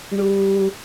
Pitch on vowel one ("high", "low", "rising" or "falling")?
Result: low